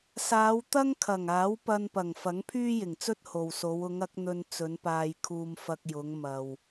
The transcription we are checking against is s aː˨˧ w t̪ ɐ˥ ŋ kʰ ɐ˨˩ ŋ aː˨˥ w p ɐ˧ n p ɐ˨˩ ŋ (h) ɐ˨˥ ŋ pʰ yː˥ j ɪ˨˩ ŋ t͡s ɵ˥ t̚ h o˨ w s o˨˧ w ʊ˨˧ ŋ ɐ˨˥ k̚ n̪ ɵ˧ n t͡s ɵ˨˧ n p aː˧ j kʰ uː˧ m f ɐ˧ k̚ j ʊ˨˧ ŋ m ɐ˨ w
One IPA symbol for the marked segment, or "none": f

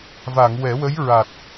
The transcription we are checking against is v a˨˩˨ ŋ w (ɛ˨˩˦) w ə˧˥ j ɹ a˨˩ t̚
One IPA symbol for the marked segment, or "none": ɛ˨˩˦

